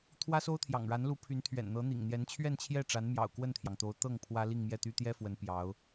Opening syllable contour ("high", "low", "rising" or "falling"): high